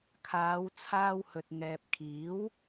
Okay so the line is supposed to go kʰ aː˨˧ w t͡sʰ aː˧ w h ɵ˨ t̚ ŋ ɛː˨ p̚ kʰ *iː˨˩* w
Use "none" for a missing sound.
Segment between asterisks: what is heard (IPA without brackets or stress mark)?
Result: iː˨˥